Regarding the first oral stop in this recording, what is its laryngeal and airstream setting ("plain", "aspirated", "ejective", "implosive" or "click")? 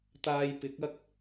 plain